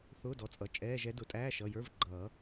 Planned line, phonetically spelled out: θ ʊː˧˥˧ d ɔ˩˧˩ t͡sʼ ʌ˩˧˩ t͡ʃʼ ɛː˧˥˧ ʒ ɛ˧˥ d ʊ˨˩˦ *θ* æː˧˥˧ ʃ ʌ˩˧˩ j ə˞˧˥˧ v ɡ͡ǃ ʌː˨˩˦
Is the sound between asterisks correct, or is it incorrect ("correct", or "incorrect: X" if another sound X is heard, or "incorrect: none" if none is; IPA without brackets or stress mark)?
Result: incorrect: tʼ